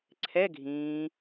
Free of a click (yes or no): no